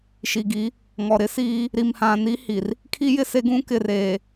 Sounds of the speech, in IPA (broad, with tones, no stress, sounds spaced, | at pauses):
ʃ i˨ ɡ i˨˦ | ŋ ɔ˨ ɾ ɪ˦ s iː˦ | ɾ i˨ m h ã˨ n i˦ h i˨ r | kʰ i˦ j ɪ˦ s e˦ ɡ ũ˦ k ɪ˨ r eː˨